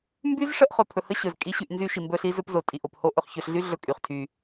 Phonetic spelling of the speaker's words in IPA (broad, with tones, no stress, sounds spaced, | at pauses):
m b y˦ z ʂ ə˦ ʔ χ ɵ˨ pʰ ɵ˨ h ə˦ ɕ ɵ˨ z kʼ i˦ ɕ y˦˨ ʔ n z y˦ ʃ i˨ m b ɵ˦ ɬ i˦ z ɵ˦ p z o˨ tʼ i˨ ʔ o˨ p h o˦ ʔ ɵ˨ χ ç ɵ˨ ɬ ɮ y˦ ɮ ɵ˦ kʼ y˨ χ tʰ y˦